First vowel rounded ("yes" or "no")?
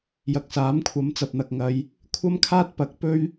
no